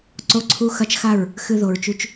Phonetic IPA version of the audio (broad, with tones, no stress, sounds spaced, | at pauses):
ǀ o˦ ǀʰ u˦ x ɐ˦ t͡ʃ x a˦˨ ɹ | x ɨ˧ ð o˨ ɹ t͡ʃ ʉ˧ t͡ʃ